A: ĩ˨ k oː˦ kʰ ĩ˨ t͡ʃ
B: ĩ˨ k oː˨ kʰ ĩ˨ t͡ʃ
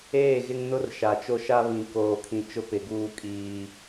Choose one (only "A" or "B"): B